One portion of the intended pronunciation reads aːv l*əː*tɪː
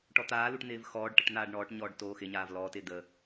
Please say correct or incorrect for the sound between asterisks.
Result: incorrect